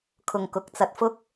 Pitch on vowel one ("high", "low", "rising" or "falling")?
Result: low